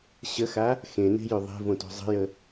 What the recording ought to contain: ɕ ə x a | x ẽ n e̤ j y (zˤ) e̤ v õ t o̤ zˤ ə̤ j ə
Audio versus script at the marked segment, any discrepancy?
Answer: yes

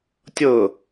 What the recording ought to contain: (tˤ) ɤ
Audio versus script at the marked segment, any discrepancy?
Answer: yes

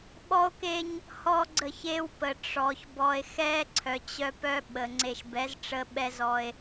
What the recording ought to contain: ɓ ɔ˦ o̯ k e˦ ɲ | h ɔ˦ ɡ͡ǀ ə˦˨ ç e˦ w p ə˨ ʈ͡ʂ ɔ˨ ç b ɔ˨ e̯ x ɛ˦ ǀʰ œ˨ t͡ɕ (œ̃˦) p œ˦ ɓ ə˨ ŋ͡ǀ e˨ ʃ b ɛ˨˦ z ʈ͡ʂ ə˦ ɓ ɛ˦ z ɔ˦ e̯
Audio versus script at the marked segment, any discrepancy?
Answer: yes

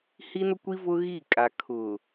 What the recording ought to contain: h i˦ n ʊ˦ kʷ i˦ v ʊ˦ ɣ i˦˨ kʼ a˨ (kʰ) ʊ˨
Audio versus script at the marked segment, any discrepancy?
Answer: no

